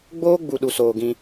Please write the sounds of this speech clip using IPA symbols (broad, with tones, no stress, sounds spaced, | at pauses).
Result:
ɡ͡b oː˦ ɡ͡b u˧ ɗ u˧ s oː˧ ɡ ĩ˧